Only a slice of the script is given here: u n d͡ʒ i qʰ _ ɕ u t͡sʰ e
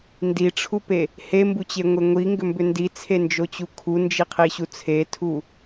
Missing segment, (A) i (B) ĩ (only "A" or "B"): A